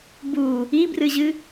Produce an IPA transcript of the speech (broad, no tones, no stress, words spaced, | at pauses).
bu | ibrɨʑɨ